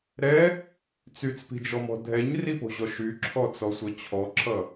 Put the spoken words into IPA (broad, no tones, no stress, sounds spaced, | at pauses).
ɾ ɛ | t͡s y t͡s p i̤ d͡ʒ ɔ m ɔ̤ dʱ ɛ ɲ r i p o̤ ʑ ɔ ʃ y ǁʰ ɔ t͡s ɔ sʷ ʌ t͡ɕʰ ɔ ǁʰ ʌ